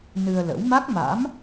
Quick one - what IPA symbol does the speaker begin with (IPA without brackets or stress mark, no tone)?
n